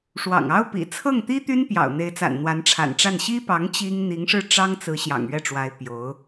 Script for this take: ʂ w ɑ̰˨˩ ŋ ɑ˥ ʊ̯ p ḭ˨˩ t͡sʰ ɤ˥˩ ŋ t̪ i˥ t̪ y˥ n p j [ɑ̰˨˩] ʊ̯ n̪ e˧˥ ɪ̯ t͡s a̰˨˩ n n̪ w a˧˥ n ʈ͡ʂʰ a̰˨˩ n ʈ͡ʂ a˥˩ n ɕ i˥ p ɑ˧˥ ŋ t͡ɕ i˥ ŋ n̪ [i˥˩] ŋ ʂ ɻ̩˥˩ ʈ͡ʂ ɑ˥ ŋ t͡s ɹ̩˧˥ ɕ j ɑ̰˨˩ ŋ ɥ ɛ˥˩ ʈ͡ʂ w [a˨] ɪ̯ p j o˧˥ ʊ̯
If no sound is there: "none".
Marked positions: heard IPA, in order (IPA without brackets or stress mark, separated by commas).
ɑ̰˨˩, i˧˥, a˧˥